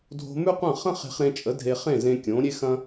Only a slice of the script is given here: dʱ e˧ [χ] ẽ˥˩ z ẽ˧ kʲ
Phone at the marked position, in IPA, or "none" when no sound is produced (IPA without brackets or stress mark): χ